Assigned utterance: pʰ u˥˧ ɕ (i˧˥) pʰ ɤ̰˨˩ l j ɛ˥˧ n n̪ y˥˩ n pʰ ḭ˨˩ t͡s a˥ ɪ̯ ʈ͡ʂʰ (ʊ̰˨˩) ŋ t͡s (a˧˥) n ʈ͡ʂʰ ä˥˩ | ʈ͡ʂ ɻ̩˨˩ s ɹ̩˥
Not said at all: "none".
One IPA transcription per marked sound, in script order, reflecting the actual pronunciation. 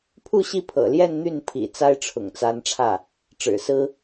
i˥˩, ʊ̰˨˩, a˧˥

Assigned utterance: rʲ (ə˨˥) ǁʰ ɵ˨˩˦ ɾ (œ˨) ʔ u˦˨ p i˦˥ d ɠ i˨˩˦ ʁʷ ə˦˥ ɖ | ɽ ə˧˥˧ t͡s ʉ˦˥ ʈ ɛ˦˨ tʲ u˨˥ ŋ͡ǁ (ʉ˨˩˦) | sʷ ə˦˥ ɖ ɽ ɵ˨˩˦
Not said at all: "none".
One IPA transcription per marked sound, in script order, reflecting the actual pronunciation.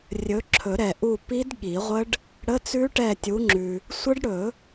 ɵ˨˥, ɛ˨, ʉ˨

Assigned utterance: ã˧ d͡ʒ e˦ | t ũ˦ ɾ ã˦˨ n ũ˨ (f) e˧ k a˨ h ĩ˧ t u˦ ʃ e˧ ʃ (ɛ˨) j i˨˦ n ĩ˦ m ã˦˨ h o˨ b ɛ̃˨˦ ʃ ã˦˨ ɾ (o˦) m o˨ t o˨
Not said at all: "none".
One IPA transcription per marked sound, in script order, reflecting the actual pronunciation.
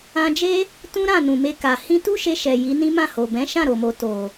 m, ɛ˨, o˨

